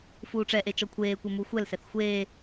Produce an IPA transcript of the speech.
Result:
f uː ʈ͡ʂ ɛ ʔ e t͡ʃ ɔ kʷʰ eː kʷ e m u xʷ ɛ l s ɛ θ xʷ e

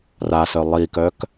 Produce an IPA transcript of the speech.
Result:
r a s œ lˠ i k œ k

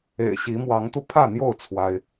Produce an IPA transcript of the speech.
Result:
ḛ˨˩ ɪ̯ ɕ i˨˦ m w ɑ˨˦ ŋ t̪ u˧ pʰ ä˥˨ n̪ j o˥˨ ʊ̯ t͡sʰ w a˦ ɪ̯

